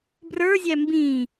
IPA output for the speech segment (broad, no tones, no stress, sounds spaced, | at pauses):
b r ə˞ zʲ æ m b ĩ